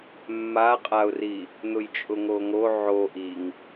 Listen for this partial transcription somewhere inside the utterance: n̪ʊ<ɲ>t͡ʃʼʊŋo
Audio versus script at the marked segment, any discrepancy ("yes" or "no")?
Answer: yes